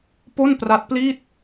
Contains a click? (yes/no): no